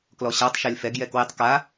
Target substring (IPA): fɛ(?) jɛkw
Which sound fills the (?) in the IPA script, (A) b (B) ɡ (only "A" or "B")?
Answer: B